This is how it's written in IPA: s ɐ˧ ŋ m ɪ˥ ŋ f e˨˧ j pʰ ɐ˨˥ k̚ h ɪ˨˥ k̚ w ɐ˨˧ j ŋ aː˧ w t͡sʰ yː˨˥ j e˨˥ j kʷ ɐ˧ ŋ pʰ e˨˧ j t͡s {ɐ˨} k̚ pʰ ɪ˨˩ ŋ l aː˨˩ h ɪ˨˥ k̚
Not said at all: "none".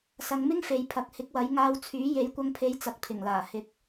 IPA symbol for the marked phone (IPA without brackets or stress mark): ɐ˨